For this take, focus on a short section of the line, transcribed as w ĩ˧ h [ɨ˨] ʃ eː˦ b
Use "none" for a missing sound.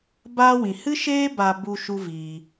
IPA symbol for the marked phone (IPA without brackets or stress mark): ɨ˦